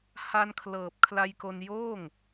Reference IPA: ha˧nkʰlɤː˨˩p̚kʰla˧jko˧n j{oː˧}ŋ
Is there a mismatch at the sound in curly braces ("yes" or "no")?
yes